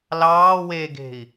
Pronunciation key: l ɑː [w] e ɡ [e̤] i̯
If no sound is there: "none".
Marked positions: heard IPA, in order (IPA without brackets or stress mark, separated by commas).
w, e̤